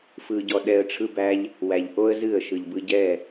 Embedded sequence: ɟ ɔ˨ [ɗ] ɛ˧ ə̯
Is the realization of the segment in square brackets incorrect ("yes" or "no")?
no